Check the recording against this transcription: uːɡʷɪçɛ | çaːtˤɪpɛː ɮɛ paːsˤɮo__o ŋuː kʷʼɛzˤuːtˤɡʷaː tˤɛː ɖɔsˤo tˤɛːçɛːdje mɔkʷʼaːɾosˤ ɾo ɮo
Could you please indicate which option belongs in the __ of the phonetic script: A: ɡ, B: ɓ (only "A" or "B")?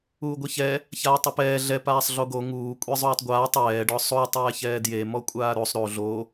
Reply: A